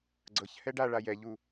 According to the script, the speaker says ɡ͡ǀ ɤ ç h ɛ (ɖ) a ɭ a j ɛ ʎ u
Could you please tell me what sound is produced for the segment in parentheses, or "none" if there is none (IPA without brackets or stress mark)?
ɖ